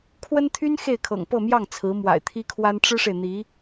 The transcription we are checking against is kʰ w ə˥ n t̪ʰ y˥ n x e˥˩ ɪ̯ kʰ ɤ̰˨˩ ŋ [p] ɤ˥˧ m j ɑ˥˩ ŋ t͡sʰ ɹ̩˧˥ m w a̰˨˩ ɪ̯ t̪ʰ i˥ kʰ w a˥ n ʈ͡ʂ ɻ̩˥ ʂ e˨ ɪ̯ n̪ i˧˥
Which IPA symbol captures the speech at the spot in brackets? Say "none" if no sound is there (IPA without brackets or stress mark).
p